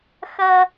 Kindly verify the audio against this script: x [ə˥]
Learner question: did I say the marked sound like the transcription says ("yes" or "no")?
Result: no